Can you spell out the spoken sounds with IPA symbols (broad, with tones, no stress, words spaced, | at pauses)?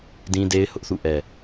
dĩ˦de˦ɪ̯hʊ˦ʔθṵ˦˨ ʔɛ˨